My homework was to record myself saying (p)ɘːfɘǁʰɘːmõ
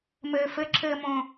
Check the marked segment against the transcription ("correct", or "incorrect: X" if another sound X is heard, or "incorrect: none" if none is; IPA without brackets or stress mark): incorrect: m